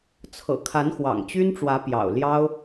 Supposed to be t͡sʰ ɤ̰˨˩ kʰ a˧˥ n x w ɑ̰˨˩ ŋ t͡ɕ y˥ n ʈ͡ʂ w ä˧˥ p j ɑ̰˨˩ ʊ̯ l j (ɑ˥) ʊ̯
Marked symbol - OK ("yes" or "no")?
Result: yes